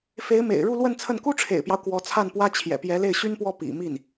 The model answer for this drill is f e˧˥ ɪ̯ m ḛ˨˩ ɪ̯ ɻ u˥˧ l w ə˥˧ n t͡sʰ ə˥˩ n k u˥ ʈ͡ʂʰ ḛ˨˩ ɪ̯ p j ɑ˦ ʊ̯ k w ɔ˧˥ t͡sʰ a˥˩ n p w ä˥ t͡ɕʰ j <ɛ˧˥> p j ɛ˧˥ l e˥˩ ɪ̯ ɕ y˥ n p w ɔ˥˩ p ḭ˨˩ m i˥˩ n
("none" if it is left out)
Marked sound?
ɛ̰˨˩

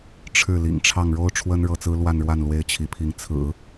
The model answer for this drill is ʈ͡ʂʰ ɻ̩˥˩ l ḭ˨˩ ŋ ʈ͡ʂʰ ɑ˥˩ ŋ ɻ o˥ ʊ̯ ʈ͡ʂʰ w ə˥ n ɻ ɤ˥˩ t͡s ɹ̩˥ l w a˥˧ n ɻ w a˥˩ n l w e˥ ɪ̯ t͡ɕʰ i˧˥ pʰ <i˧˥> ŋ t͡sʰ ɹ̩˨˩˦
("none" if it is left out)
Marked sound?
i˧˥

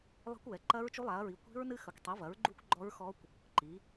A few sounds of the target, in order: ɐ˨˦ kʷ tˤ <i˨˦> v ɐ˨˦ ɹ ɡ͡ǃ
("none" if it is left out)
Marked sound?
i˨˦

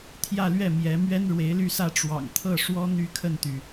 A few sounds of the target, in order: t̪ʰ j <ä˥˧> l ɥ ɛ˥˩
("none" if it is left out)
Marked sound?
ä˥˧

